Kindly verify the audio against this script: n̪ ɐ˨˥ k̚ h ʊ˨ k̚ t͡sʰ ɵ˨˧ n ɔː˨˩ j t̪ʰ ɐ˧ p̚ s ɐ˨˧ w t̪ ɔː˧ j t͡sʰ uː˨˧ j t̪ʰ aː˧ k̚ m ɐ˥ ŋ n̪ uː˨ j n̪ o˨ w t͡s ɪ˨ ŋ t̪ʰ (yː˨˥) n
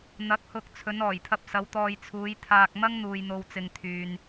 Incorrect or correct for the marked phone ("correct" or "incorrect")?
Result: incorrect